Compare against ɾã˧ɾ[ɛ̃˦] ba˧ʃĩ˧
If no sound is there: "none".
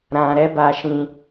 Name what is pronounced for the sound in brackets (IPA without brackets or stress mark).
ɛ˦